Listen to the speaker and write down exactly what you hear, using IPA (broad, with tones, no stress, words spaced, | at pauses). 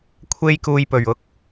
kʷʰe˧jkuː˨jpɵ˨˩ɥʊ˨˥k̚